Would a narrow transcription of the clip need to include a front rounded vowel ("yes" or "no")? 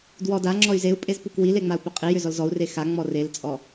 yes